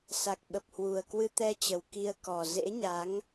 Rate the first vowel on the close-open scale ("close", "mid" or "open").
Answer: open